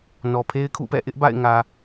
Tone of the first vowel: low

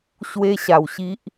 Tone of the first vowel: high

